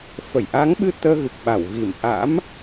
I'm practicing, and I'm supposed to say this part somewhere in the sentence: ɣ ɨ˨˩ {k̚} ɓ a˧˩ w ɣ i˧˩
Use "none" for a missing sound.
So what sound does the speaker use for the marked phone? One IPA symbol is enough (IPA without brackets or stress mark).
k̚